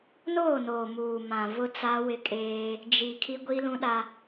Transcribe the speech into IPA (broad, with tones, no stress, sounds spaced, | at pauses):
n oː˦˨ n o˨ m uː˨ m ã˨ v ʊ˦ t͡s a˦ w ɪ˦ kʼ eː˦ | d͡ʒ i˨ kʰ i˦ ɡʷ i˦ l ũ˦ ɗ a˦